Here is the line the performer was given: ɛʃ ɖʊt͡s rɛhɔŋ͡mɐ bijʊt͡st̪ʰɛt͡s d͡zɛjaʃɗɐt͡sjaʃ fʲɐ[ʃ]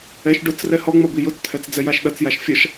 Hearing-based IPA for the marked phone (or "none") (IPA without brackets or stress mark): ʃ